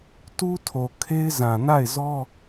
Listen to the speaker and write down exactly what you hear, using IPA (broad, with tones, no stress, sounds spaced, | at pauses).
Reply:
t u˦ tʰ o˨ kʰ e˦ ɪ̯ z ã˨ n a˦˨ ɪ̯ z ɔ˦